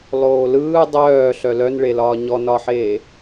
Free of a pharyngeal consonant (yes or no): no